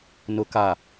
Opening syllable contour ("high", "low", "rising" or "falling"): low